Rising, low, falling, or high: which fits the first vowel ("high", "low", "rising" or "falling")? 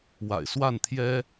low